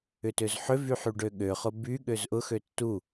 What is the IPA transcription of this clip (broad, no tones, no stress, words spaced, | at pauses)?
ʏtøzħʏvyħ yɖøɠøχʊ by ɠøzʔʊxø tːu